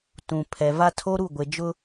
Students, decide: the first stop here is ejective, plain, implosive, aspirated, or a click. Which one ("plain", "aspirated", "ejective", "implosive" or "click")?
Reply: plain